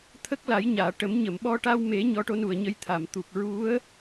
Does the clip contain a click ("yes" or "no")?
no